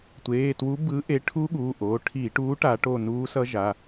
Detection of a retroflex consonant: present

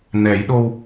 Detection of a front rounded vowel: absent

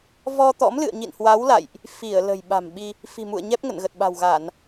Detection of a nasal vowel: absent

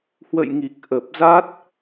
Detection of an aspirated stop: absent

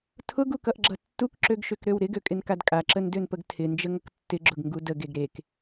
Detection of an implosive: absent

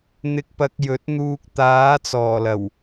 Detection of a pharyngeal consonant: absent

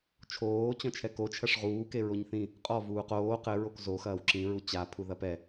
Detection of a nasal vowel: present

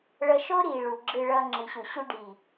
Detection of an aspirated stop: absent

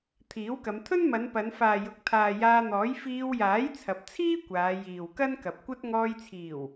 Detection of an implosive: absent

